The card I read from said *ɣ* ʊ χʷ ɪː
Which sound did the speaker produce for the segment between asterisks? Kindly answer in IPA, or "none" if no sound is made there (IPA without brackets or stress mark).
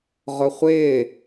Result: ʁ